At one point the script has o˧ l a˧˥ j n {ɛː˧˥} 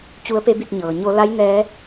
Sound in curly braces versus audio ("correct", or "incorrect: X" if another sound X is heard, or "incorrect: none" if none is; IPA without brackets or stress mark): correct